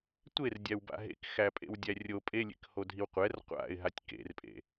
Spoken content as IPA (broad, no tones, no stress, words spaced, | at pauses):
tʷerdʲæwba̰ ɦḛkxæpʼḛwdʲæ rʲo pʼelʲḛkhodʱiw qʷɛr qʷa̰ɪ̯ɦatʲ kḛrpʼḛ